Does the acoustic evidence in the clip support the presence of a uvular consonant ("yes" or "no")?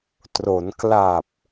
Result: no